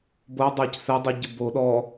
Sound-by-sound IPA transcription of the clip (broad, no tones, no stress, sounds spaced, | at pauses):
b o dˤ a c θ ɛ dˤ u ɟ ɯ b o ɗ ɔ